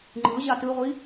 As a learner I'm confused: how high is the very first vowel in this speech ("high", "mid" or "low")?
high